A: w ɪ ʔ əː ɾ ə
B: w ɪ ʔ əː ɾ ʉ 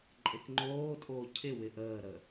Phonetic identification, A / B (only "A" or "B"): A